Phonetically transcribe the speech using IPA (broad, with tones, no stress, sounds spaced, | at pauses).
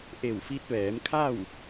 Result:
ʔ e˧˩ w f i˧ t̚ ʋ ɛː˩˧ m kʰ a˥˨ w